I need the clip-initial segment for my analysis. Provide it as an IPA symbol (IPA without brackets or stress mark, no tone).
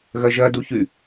ɣ